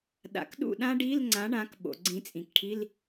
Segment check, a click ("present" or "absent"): present